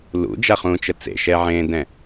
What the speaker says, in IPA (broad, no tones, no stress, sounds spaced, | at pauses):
l ṵ d͡ʒ a χ ũː t͡ʃ ə t͡s ḛ ʃ ɛ ʕ ẽː d ɛ̃